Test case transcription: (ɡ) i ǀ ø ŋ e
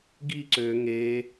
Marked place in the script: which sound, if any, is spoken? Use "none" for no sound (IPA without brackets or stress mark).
ɡ